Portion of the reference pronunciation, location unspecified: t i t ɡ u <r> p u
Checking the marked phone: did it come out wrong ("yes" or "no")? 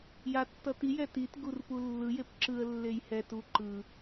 no